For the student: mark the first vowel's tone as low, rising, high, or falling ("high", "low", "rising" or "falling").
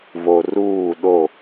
low